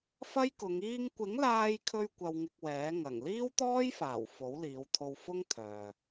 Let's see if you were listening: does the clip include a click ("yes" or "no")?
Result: no